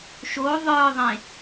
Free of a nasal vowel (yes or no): no